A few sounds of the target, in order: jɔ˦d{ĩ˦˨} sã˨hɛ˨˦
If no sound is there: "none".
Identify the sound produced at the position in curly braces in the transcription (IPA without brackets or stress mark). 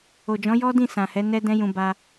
ĩ˦˨